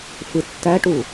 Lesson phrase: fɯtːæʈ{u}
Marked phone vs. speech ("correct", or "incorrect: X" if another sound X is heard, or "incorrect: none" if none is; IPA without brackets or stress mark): correct